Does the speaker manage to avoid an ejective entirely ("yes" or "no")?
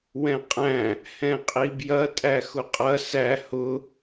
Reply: no